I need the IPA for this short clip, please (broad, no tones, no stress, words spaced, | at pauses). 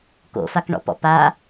ko̰fakɳɔ̰pɔ̰ pa